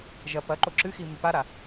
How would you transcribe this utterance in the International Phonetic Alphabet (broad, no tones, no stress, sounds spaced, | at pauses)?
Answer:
ʒ ɐ p ɐ ǃ o ǁ ɨ x i m ʉ p a ɾ a